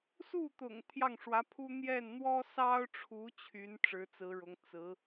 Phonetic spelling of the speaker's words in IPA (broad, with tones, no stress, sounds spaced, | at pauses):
s u˥˩ t̪ ʊ̰˨˩ ŋ t̪ʰ j ɑ˥˩ ŋ ʂ w ä˧˥ pʰ u˥ n̪ j ɛ˥˩ n n̪ w ɔ˥ s ɑ˥ ʊ̯ ʈ͡ʂʰ u˧˥ t͡ɕʰ y˧˥ n ʈ͡ʂ ɻ̩˧˥ t͡s ɹ̩˧˥ ɻ ʊ˧˥ ŋ t͡s ɹ̩˧˥